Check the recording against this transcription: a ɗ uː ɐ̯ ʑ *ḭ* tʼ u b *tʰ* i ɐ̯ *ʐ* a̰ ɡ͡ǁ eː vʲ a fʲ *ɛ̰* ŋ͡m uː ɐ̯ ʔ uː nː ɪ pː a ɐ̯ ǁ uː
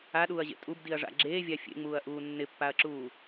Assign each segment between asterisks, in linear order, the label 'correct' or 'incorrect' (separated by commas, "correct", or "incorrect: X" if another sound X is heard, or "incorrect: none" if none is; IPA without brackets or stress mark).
incorrect: ḛ, incorrect: d, correct, incorrect: ḛ